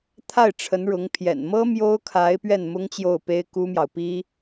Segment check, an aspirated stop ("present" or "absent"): present